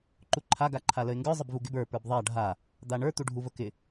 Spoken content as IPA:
ǃ u ǃʰ a ɡ a ǃʰ a l ə ɪ̯ ŋ ɡ ə˞ zˤ ə b v u ɡ ɪ b ə˞ p ə˞ b ðˤ a ɖʱ a | d̪ a ɳ ə˞ t̪ u ɖʱ u v ə k ɪ

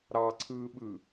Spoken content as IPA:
ɾ ɑ ǀʰ ɯː ɓ ɯ

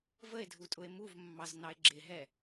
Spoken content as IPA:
v ə e̯ dʱ u tʼ ʊ e̯ m u v mː ɑ z n ɑ e̯ ɡ͡ǁ ɪ ɦ ɛ

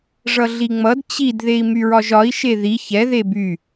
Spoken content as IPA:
ʐ ʌ ɮ i ŋ͡m ʌ d t͡ɕ i d ð e i̯ m y ɹ ɒ ʒ ɒ i̯ ʃ e ð i ç ɛ ð e b y

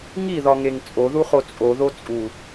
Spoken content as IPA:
ŋ i ð ɒ ŋ e ŋ t͡sʼ o ð u χ o t͡sʼ o ð o t͡sʼ u

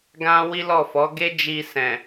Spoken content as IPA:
ɡ ã˦ w i˦ l ɔ˦˨ f ɔ˨˦ ɡ e˦ d͡ʒ i˧ s ɛ̃˨

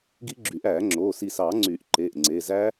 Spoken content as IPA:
ɡ i˦˥ ɡ͡ǁ y˨˩˦ ʔ æː˨˩˦ ŋ͡ǁ oː˩˧˩ s i˧˩ s ɑː˨˩˦ ŋ͡ǀ yː˨˩˦ ʔ ǃ eː˩˧˩ ʔ ŋ͡ǀ eː˩˧˩ z æː˦˥

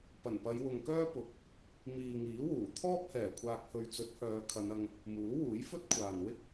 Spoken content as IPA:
p ɐ˨˩ n p ɐ˨˧ j w ʊ˨ ŋ k œː˥ p ʊ˨˥ k̚ | m iː˨ ŋ iː˨˥ w uː˨˩ t̪ʰ ɔː˥ p̚ h ɛː˨˩ kʷʰ aː˧ k̚ h ɵ˨˧ ɥ t͡s ɵ˨˥ t̚ h œː˨˧ kʰ ɐ˨˧ n ɐ˧ ŋ | m uː˨˥ w uː˨˥ j f ɵ˥ t̚ kʷʰ aː˨ n w ɪ˥ k̚

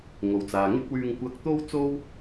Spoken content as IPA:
ŋ o˨ w t͡s aː˨ ŋ ɪ˥ k̚ w yː˧ ŋ kʷ ɐ˧ k̚ t̪ o˥ w t͡s o˥ w

